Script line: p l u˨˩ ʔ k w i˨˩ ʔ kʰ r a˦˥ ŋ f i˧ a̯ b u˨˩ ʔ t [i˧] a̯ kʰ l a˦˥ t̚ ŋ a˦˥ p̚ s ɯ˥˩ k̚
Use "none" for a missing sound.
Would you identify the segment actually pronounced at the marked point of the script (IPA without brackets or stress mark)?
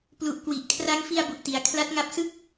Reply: i˩˦